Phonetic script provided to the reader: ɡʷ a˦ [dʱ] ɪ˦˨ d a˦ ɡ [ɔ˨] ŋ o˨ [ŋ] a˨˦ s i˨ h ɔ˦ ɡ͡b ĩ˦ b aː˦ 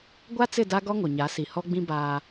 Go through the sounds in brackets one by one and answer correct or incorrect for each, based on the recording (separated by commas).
incorrect, incorrect, incorrect